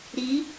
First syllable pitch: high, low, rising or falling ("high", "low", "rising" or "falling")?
rising